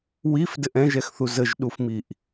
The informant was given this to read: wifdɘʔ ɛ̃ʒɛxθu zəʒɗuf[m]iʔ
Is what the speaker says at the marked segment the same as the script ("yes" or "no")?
yes